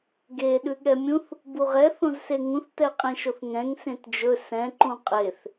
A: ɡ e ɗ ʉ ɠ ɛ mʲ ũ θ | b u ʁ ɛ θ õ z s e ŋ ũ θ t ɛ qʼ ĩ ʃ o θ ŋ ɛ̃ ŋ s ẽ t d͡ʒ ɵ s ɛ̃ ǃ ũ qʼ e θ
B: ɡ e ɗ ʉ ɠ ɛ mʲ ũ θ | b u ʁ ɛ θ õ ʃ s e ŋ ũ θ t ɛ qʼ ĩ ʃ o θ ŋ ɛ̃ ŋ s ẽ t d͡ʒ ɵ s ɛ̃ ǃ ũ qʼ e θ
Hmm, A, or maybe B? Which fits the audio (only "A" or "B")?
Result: A